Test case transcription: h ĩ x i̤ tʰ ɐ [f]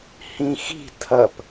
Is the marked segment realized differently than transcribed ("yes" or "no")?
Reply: yes